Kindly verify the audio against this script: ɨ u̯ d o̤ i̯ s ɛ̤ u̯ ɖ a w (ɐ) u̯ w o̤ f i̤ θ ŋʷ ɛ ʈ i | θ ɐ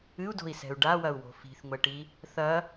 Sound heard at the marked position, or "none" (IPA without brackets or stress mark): ɐ